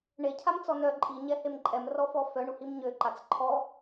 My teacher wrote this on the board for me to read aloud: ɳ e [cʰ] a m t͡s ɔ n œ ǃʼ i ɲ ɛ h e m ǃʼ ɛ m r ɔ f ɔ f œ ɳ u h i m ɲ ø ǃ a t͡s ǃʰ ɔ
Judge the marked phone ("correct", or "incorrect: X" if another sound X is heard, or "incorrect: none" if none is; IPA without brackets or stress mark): correct